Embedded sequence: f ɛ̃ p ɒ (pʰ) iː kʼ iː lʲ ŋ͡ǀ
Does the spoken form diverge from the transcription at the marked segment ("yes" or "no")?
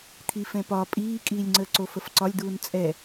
yes